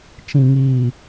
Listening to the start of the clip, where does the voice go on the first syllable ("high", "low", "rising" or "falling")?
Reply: low